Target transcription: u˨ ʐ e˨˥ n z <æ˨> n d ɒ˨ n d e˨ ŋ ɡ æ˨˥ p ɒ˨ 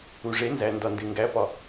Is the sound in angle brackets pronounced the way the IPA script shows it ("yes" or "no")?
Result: yes